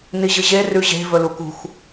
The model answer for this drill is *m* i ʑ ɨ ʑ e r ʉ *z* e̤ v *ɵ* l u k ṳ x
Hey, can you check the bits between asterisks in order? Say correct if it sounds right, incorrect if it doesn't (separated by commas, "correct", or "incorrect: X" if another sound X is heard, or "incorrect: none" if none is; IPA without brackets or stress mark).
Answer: incorrect: n, incorrect: ʑ, correct